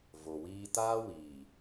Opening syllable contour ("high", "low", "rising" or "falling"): low